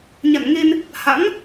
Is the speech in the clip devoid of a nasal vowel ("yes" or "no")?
yes